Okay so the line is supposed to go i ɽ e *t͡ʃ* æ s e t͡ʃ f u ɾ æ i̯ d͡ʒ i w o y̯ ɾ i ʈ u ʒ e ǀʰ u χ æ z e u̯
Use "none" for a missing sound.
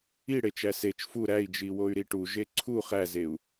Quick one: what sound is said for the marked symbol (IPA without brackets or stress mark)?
t͡ʃ